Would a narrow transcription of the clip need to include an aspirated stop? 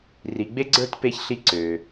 no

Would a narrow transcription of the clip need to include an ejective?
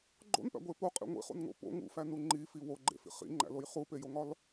yes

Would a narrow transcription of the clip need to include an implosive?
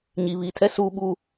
yes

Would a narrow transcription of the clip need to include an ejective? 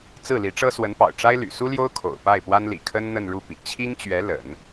no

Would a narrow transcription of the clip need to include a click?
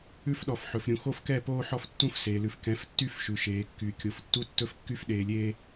no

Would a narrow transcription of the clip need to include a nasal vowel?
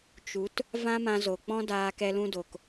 yes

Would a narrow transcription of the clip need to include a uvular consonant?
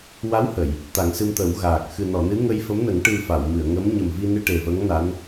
no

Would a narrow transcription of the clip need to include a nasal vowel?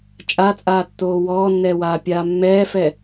no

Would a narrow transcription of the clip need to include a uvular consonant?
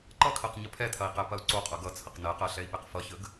yes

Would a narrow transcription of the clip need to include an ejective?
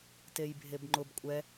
yes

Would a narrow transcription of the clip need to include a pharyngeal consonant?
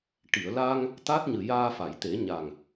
no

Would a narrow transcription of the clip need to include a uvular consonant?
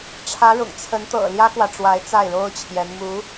no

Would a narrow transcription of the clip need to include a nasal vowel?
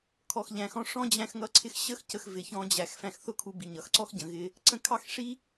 yes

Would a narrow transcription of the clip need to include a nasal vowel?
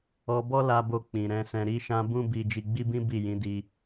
yes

